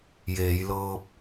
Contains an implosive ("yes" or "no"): no